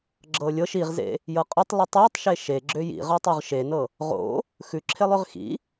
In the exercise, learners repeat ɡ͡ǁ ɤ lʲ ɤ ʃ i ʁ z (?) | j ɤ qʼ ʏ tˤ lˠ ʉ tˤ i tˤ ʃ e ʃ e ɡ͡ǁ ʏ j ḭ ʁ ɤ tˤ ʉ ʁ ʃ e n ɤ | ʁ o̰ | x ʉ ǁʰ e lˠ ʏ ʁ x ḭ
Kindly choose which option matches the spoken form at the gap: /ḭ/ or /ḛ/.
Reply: ḛ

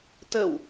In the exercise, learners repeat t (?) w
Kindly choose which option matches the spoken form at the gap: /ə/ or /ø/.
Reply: ə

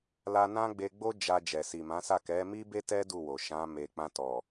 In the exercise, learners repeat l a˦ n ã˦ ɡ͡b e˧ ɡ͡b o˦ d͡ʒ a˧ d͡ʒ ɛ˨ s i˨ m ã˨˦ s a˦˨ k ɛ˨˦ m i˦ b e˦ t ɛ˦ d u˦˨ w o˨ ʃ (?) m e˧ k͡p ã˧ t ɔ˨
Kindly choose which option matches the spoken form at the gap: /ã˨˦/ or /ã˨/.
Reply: ã˨˦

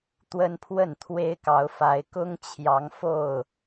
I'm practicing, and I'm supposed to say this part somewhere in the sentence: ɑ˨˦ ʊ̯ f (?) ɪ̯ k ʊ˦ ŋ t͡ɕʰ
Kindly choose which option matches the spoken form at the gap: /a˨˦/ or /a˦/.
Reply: a˨˦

